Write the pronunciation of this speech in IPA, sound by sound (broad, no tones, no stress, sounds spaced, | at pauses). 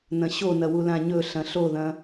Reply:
n ɐ̃ ɕ o n ɐ w u l ã ɲ ɵ ɬ ɐ̃ ɬ o ð ɐ̃